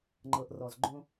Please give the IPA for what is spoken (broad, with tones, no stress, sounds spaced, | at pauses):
ŋ͡ǃ ɤ˩ ʔ r ɔ˩ z ɡ͡ǃ õ˧